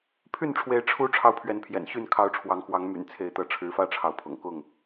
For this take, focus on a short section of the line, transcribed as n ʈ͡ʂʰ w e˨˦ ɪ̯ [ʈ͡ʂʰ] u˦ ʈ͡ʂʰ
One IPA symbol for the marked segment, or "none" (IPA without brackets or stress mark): ʈ͡ʂʰ